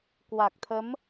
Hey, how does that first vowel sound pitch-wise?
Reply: low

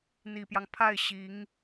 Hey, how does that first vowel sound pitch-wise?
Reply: low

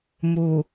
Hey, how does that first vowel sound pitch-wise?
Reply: low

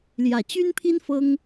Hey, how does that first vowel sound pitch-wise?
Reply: low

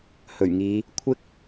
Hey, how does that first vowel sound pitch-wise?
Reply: low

